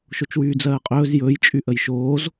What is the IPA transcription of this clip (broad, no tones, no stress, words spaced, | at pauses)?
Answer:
ʃot͡ʃwyːd͡zɜːqʼɵːz jɵːjt͡ʃʼyʔəj ʃoːz